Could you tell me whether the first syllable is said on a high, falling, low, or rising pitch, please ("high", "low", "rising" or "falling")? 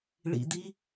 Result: low